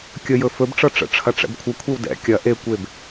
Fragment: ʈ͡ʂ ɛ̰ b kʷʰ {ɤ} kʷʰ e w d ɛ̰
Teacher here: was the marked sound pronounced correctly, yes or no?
yes